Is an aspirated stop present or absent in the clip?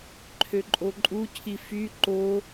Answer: present